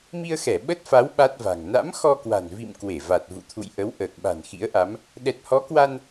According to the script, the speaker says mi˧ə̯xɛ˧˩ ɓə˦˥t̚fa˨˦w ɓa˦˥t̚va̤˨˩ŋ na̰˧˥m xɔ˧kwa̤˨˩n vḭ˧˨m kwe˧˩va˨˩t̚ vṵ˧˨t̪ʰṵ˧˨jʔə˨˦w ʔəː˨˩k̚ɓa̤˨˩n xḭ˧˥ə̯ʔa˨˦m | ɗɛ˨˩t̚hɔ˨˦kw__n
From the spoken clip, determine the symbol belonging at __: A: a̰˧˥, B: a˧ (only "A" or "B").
B